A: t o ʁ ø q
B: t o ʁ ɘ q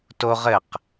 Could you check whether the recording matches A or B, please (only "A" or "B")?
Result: B